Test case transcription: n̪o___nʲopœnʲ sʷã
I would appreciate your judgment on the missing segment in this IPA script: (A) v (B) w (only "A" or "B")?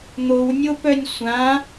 B